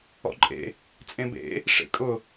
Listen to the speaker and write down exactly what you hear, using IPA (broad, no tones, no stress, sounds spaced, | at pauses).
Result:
ɔ̰ ǃʼ ḛ | t͡sʼ ẽ b ḛ | ʂ ḛ kʼ ʊ